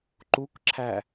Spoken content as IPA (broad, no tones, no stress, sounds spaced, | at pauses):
ǃ u k ǁʰ æ